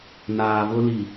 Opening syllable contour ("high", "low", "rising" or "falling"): low